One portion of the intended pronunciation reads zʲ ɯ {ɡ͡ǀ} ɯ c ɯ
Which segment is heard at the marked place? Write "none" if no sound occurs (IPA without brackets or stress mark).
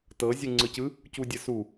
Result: ŋ͡ǀ